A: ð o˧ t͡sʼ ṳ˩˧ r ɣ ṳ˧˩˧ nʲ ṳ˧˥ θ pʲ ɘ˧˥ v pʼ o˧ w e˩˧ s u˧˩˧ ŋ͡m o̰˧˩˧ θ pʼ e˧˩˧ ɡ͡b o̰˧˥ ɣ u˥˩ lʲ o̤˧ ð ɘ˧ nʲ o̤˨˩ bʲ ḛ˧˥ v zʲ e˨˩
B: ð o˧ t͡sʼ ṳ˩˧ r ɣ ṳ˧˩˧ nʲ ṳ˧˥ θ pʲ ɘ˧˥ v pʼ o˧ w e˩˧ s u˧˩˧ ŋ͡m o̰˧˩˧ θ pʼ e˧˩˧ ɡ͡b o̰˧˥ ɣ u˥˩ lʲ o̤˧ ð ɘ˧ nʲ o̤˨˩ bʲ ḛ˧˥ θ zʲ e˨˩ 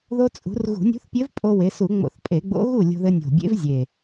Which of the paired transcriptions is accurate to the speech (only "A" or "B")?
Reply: A